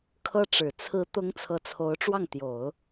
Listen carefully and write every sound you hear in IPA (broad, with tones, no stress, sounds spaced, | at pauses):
kʰ ɤ˥ ʈ͡ʂ ɻ̩˨˩ t͡sʰ ɹ̩˧˥ t̪ ʊ˧˥ ŋ t͡sʰ ɤ˧˥ t͡sʰ o˧˥ ʊ̯ ʈ͡ʂ w ɑ˥˩ ŋ t̪ j o˨˩˦ ʊ̯